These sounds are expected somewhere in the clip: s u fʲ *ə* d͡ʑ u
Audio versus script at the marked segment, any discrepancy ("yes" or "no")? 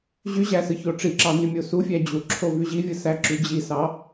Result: yes